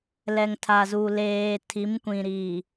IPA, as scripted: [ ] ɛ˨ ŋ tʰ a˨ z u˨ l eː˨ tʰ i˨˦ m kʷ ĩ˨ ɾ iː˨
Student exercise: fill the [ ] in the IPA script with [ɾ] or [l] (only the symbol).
l